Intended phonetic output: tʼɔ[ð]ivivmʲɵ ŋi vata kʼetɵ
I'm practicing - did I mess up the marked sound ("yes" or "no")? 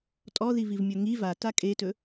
no